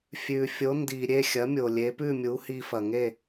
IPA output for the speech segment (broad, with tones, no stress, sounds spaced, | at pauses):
fʲ ʉ˩ fʲ o˩˥ n d i˩ ɾʲ e˥˩ xʲ ɐ˩˥ mʲ o˩ lʲ e˩˥ p ʉ˥˩ mʲ u˩˥ h i˧ f ɐ˩ ŋ e˥˩